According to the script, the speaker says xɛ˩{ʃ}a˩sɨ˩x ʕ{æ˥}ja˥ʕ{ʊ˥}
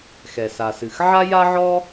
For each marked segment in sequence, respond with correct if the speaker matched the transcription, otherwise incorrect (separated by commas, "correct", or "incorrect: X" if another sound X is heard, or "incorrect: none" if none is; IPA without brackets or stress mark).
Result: incorrect: s, incorrect: a˥, incorrect: ɔ˥